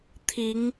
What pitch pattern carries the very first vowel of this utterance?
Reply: rising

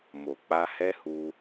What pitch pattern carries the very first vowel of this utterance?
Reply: low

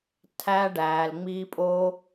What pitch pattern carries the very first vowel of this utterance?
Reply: high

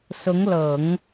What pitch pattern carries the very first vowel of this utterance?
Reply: rising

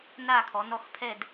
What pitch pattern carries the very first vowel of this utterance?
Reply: falling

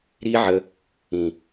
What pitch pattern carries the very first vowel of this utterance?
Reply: high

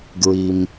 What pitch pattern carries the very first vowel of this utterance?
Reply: high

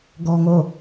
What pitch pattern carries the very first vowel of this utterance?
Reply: high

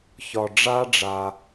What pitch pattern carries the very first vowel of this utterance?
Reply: low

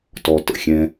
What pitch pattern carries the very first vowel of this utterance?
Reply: low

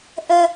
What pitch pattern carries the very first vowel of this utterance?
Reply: high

